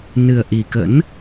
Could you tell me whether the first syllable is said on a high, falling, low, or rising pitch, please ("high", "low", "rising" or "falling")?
low